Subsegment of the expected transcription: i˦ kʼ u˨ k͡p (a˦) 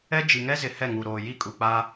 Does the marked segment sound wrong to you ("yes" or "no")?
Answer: no